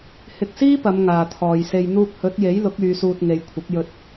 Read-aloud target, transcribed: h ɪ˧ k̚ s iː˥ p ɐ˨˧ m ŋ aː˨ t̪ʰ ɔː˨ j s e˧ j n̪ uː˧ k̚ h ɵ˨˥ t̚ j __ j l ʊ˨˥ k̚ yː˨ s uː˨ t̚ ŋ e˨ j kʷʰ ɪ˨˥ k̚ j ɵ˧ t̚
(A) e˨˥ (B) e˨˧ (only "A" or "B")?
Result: A